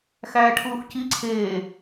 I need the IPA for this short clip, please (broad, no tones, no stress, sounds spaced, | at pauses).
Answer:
x æː ʈʰ uː x c i ǀʰ eː